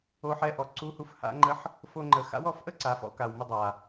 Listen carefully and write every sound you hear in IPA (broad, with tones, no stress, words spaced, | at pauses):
o˧˥ħɛ˧˥ʔɔ˩˧ ǀu˧˥hu˧f ha̰˧˥ŋ͡ǃə˧˥ħ | fo˧ŋ͡ǃə˩˧ xa̰˧˥wɔ˩˧fʔə˥ ǀa˩˧fɔ̰˩˧ka˩wmə˧ dˤa˩